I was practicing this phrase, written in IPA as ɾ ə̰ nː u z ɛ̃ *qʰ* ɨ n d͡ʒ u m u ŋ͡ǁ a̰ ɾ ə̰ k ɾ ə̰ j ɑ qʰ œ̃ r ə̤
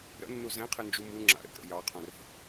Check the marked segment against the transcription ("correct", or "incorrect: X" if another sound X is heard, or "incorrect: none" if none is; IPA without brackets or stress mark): correct